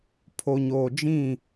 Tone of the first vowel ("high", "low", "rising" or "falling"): low